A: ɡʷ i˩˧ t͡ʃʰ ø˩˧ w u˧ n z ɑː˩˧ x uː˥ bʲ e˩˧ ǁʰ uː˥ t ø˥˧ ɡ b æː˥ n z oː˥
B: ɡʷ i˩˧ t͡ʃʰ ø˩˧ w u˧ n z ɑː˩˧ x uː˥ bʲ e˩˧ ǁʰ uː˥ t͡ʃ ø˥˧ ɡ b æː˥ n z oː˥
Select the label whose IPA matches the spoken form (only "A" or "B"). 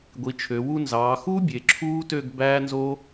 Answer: A